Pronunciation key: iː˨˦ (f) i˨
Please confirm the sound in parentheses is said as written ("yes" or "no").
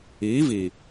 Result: no